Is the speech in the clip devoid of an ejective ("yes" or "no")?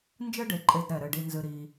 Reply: no